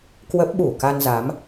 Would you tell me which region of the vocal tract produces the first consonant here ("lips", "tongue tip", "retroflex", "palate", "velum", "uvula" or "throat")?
velum